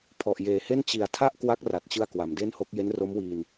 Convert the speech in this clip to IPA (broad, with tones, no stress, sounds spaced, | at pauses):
pʰ ɔ˨˩ ʔ j eː˨˩ h e˥˩ n t͡ɕ i˨˩ a̯ tʰ a˥˩ ʔ k w a˦˥ k̚ r a˨˩ t̚ t͡ɕ ɯ˧ a̯ k w a˩˦ m d e˥˩ n h o˦˥ k̚ j e˦˥ n r o˦˥ m w iː˧ n